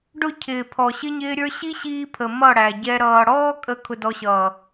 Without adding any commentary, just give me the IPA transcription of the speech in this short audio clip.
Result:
ɖ ʊ˦˨ cʰ ɪː˨ pʰ ɔ˨ ɕ ɪ˦ ɲ ɪː˦ ɾʲ ə˞˦ ɕ i˦ ɕ iː˧ pʰ ə˨ m ʌ˦˨ ɽ æ˨ ɟ ɛ˧ ɾ ʌː˨ ɽ ɔː˦ kʼ ə˧ kʰ ʊ˧ d ɔ˧ ɕ ʌː˨

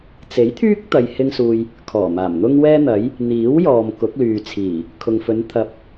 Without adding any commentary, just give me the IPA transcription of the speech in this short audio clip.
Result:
t͡s e˨˥ j t̪ʰ yː˥ k̚ t̪ ɐ˨ j h ɪ˧ ŋ s uː˨ j | kʰ ɔː˨˩ m aː˨˩ m n̪ ʊ˥ ŋ w ɛː˥ n̪ ɐ˨˥ j | n̪ iː˨˥ w j ɔː˨ m k ʊ˨˥ k̚ l yː˨ t͡sʰ iː˨˩ | kʰ ʊ˨ ŋ f ɵ˨˧ n t̪ʰ ɐ˨˥ p̚

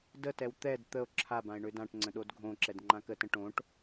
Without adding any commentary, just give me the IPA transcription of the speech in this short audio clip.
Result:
d ə t ɛ w t̪ ɛ d t̪ ə o̯ ǁʰ a b ã e̯ ɳ ø d ã ʈ ŋ͡ǀ ə̃ ɗ o d ɡʱ õ ǁ ɛ d ŋ͡ǃ ã k ə t ə̃ ʈ õ ʈ

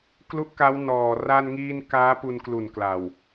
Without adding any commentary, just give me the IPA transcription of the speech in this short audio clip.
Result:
k l u˦˥ ʔ k a˦˥ w n ɔː˨˩ r a˧ n ŋ iː˧ n k aː˦˥ p u˧ n k l u˨˩ n k l a˨˩ w

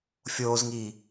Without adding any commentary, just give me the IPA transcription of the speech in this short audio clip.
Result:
fʲ oː z ŋ iː

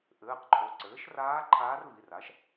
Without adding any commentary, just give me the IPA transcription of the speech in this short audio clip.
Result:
ʔ ɘː˩˧˩ q ǃʰ o˩˧˩ ǀ ɘː˩˥ ʃ r aː˧˥ ǃʰ aː˧˥ r v i˩˧˩ r a˩˥ ʃ

